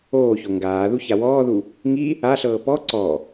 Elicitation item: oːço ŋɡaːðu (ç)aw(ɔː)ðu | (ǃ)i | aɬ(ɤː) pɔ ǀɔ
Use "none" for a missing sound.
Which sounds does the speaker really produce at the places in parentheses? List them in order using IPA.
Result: ç, ɔː, ŋ, ɤː

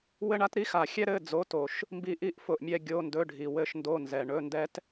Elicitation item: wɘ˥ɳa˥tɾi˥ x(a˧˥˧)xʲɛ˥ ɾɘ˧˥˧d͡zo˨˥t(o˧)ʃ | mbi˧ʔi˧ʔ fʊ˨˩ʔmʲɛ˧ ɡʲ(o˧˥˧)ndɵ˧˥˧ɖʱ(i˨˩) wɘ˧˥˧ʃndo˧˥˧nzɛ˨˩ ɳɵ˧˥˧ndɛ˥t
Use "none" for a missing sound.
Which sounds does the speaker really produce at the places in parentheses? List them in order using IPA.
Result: a˨˩, o˨˩, o˧˥˧, i˨˩

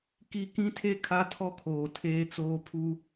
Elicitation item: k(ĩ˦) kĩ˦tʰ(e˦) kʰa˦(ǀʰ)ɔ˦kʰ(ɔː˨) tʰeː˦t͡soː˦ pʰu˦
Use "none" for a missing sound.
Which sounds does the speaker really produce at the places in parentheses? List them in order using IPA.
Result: i˦, e˦, tʰ, oː˨

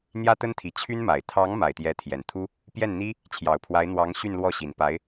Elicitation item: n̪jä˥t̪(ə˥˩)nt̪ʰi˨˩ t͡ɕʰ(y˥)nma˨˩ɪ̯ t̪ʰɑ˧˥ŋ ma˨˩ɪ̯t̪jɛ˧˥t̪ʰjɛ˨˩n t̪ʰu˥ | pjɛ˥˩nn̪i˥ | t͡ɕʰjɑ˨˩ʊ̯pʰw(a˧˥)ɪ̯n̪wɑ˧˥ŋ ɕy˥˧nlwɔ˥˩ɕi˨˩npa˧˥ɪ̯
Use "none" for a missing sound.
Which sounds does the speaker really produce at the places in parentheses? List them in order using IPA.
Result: ə˥, y˥, a˧˥

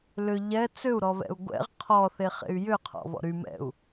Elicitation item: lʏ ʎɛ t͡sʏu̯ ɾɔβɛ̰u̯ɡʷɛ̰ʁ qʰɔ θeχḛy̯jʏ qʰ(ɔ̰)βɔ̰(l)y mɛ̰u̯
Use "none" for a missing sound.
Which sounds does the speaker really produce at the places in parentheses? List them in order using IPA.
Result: ɔ̰, ɾ

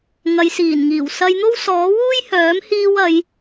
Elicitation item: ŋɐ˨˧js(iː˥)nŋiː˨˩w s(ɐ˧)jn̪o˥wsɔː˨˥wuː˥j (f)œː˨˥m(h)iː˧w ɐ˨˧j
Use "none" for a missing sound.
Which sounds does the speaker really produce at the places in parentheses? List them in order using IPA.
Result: iː˨˩, ɐ˧, h, h

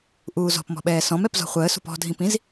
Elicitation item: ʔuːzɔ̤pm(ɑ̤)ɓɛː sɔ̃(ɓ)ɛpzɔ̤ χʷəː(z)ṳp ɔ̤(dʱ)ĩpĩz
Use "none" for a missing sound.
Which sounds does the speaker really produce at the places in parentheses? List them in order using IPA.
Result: ɔ̤, m, s, dʱ

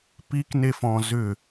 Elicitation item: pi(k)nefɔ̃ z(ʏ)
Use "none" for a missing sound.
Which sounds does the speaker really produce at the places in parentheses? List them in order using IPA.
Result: k, ʏ

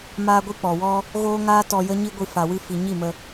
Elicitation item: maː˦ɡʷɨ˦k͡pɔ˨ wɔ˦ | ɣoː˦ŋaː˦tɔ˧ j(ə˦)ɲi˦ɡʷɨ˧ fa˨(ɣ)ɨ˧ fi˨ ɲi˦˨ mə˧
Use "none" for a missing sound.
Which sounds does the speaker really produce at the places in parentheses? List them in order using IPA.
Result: ə˦, w

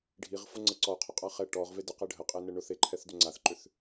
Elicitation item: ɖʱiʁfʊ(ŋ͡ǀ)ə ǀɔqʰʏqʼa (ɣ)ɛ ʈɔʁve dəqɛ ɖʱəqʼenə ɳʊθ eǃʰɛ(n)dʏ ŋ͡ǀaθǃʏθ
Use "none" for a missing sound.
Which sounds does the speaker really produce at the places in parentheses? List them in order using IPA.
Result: ŋ͡ǀ, χ, θ

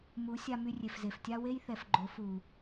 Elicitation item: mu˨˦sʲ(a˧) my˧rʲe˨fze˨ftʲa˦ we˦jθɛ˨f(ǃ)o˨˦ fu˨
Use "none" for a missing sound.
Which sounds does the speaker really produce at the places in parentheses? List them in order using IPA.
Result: a˧, ɡ͡ǃ

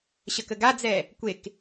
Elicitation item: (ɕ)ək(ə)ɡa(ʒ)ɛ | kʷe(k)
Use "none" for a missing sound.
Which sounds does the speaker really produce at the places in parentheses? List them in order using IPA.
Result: ɕ, ə, d͡z, k

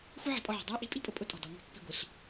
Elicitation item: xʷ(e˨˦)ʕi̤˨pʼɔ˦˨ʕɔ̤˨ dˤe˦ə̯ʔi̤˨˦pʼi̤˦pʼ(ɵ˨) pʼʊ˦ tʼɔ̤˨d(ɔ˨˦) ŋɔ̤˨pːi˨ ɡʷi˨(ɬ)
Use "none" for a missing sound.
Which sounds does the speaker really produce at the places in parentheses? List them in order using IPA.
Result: e˦, ʊ˨, ɔ˨˦, ɬ

